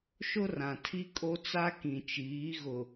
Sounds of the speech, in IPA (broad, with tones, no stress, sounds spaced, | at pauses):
ʃ ʊ˦ r ã˨ tʰ i˦ kʼ o˦ t͡s a˦ k ĩ˨ t͡ʃ iː˨˦ ɣ ʊ˨